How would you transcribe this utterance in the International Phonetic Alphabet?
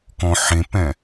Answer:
k ɔ̃ ħ ẽ p ɛ̃

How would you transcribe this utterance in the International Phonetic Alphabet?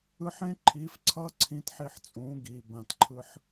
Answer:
ɯ˧ ħ ẽ˦ ǃʰ iː˨˦ f ǀʰ ʌː˦ ǀʰ ĩ˧ t ħ i˧ ħ t͡sʼ ũː˨˦ ɡ iː˨ b ã˨ t ǃʰ ɯ˧ ħ

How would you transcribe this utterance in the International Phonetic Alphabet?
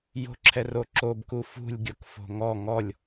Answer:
j o̤ ǁʰ ɛ r o ǁ o b k u f ṳ lʲ ɡʲ o k f o̤ ŋ ɔ ŋ ɔ lʲ

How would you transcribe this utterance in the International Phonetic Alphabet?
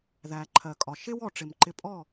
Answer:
ð æ˨ ǃʰ ɜ˨ kʼ ɒ˨ ʃ ɪ˦ w ɔ˨ ʈ͡ʂ ɪ˨ m ǃ ɪ˧ pʼ ɔ˦˨

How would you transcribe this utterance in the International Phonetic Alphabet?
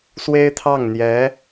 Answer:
s w e˥ ɪ̯ t̪ʰ ɑ˥˩ ŋ n̪ j ɛ˧˥

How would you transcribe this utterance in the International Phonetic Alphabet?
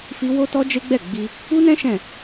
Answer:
f i˦ w o˦ t ɔ˦ d͡ʒ e˦ ɡ͡b ɛ˦˨ ɡ͡b i˧ | u˦ n ɛ̃˦ ʃ ɛ̃˦˨

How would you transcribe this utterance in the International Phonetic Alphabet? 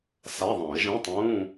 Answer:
s a˧˥˧ ðˤ ã˨˩˦ ɪ̯ ʒ ĩ˧˥˧ tˤ ũː˧˥˧

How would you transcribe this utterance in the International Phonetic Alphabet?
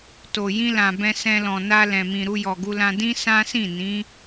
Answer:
t o˨ j ĩ˧ l ã˨ b ɛ̃˧ s ɛ̃˧ l ɔ̃˨ n a˧ l ɛ̃˨ m ĩ˨ ɾ u˧ j ɔ˨ ɡ u˧ l ã˧ d ĩ˦ s ã˦ s ĩ˦˨ n ĩ˨˦

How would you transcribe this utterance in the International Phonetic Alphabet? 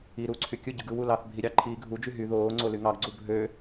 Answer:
i ɾ uː ǀʰ y kʲ ɯ ɟ ɯ ɡ ɯ w u l ɑ θ bʱ i ɾʲ ɑ ǃʰ iː ɡʱ u d͡ʒ y ɦ y ð oː ŋ͡ǀ o l y ŋ ɑ ɡ ɡ͡ǀ u bʱ ø

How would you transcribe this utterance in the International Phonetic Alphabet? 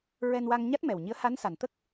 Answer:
ɹ ɛ˧ n w a˧ ŋ ɲ a˦˥ t̚ m ɛ˨˩ w ɲ i˧˥ ə̯ h a˧˥ n s a˨˩ n t̪ ə˦˥ k̚

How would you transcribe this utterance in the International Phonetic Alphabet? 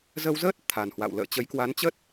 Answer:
z ə˧ w z əː˦˥ t̚ t̪ʰ a˨˩ n h w a̰˧˨ w l ə̰ː˧˨ t͡ɕ ə˨˦ j k w a˨˦ n t͡ɕ ə˦˥ t̚

